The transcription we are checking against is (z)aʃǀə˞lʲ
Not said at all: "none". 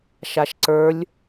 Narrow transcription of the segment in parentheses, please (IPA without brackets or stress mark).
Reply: ʃ